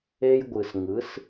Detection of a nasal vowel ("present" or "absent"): absent